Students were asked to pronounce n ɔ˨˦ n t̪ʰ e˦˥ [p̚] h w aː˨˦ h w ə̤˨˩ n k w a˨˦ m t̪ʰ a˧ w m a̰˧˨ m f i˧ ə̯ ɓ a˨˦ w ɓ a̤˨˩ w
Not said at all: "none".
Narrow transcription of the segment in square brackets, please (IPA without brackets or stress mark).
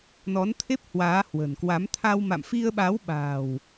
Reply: p̚